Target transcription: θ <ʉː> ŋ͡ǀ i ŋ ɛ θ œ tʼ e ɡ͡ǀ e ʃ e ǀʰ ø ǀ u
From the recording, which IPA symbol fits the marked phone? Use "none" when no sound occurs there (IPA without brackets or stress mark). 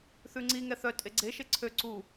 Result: ʉ